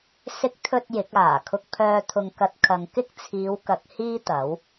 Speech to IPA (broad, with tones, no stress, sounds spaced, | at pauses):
s ɪ˨˥ k̚ t̪ʰ ɵ˨ t̚ j ɪ˨˥ k̚ aː˨˩ kʰ ʊ˨ k̚ pʰ œː˨ t̪ʰ ʊ˨ ŋ k ɐ˧ t̚ kʰ ɐ˨ ŋ k ɪ˥ k̚ t͡sʰ iː˨˧ w k ɐ˨˥ k̚ h iː˥ t̪ ɐ˨˥ w